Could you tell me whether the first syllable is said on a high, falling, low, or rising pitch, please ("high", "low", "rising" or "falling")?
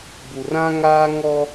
low